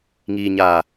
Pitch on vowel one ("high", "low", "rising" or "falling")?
low